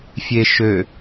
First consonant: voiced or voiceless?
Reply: voiceless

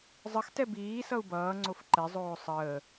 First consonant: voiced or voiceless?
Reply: voiced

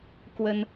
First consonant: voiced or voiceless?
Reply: voiceless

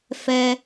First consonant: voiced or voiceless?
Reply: voiceless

